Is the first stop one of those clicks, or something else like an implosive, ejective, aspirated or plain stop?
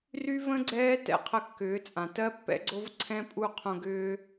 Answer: click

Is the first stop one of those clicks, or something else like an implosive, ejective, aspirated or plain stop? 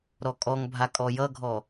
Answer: ejective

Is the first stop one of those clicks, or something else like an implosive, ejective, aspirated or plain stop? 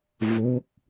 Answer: plain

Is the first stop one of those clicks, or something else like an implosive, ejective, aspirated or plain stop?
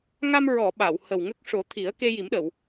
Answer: implosive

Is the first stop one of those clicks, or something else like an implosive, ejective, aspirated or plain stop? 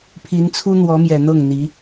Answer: aspirated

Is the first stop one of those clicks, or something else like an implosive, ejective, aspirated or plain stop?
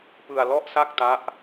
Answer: plain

